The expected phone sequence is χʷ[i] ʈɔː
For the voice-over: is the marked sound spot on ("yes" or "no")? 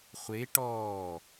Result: no